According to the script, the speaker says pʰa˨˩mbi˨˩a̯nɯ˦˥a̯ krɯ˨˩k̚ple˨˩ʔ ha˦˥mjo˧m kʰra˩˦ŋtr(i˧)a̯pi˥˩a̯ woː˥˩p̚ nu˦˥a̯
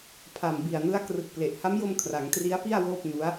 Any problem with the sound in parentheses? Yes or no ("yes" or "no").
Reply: yes